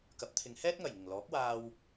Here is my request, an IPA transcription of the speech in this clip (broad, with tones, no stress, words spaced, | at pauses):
kɐ˨˥p̚t̪ʰɪ˨˧ŋ hɛː˥t̚ŋɐ˨˩jŋɪ˨˩ŋ lɔː˨˥k̚waː˧w